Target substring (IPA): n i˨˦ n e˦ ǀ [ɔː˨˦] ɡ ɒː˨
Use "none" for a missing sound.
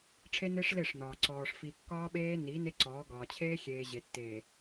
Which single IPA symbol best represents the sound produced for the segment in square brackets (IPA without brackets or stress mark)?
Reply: ɔː˨˦